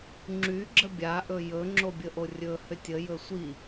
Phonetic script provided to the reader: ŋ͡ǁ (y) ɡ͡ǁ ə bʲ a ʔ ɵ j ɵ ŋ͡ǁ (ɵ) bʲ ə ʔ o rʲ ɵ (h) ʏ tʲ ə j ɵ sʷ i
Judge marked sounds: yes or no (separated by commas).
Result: yes, no, yes